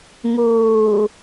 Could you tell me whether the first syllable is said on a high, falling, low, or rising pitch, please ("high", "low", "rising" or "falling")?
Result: low